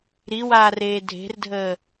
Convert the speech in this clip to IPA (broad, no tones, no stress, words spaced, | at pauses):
ɾiwaːreː dʱe̤rdʱəː